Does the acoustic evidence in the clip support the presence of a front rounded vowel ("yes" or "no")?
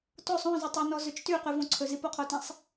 yes